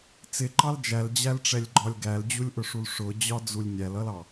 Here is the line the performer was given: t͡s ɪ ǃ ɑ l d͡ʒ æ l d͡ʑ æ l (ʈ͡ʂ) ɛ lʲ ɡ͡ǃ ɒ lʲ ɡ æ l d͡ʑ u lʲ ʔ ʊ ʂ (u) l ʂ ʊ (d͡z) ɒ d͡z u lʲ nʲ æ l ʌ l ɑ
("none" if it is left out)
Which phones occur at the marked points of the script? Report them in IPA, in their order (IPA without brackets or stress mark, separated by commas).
ʈ͡ʂ, u, d͡ʑ